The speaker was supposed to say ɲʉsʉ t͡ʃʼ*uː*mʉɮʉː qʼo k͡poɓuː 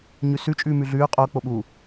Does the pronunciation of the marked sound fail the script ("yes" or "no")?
yes